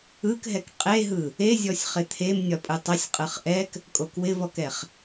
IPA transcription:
ɯ k ɦ ɛ k qʼ e ɦ ɯ | e zʲ ɔ sʲ χ ɪ t̪ʰ e m nʲ ɒ pʼ ɯ tˤ ɪ sʲ qʼ ɯ χ ʔ ɛ k | kʼ o k w ɪ v ɔ k ɛ χ

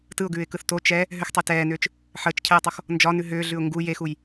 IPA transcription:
t ɯ ʊ̯ ɡ ʉː ɪ̯ k ɯ θ t o t͡ʃ ɛ | ɦ ʏ x tˤ e t ɛː n ʏː t͡ʃ | ħ əː t͡ʃ cʰ ɛː tˤ o x | n d͡ʒ ɒ n ʉ ɦ ʏː ɮ ʉ ʊ̯ ŋ ɡ u j e x u j

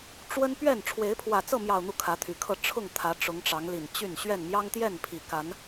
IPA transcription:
ʈ͡ʂ w ə˦ n p ɥ ɛ˥˨ n ʈ͡ʂʰ w e˨˦ ɪ̯ pʰ w ä˨˩ t͡s ɤ˥˨ m j ɑ˨˩ ʊ̯ n̪ u˥˨ kʰ ä˨˦ t̪ʰ y˨˩ kʰ ɤ˥˨ ʈ͡ʂʰ ʊ˥˨ ŋ t̪ʰ ä˨˦ ʈ͡ʂ ʊ˨˦ ŋ ʈ͡ʂ ɑ˨˦ ŋ l i˨˩ n t͡ɕ y˥˨ n ɕ ɥ ɛ˥˨ n m j ɑ˦ ŋ t̪ j ɛ˥˨ n pʰ i˨˩ k a˨˦ n

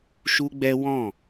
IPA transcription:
ʃ u˦ ɡ͡b ɛ˦ w ɔ̃˦˨

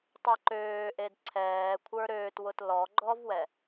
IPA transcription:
tˤ e ǃ øː ʔ e d ǀʰ ɛː kʷʰ ə˞ ɾ øː t w ʊ t l ɔ ɡ͡ǃ ɔ v w ɛ

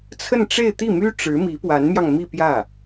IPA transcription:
t͡sʰ ə˥˧ n ʈ͡ʂ e˥˧ ɪ̯ t̪ i˥˩ m y˥ ʈ͡ʂ ɻ̩˧˥ m i˧˥ p w a˧˥ n m j ɑ˧ ŋ m i˥˧ p j ä˥˩

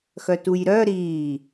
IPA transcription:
x œ t u j ɾ œ ɾ iː

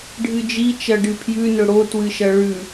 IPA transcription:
ɖʱ ɨ d͡ʒ i t͡ʃ ɐ ɖ ɨ pʰ j ʉ n ɵ ɽ o t w ɨ ʃ ɐ ɭ ʉ

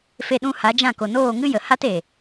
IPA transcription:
f e˧ ɗ ũ˧ h a˨˦ d͡ʒ ã˦˨ k o˨ n oː˦˨ ŋ ɨ˦ j ə˨ h a˦ t e˨

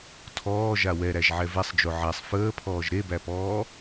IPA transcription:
tʰ ɔː ʒ a w ɛ ɾ æ ʒ ʕ ɛ v ɛ sˤ d͡ʒ o ʕ æ sˤ f əː pʰ ɔː ʒ ɾ e b æ p ɔː

